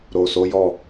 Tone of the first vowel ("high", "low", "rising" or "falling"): low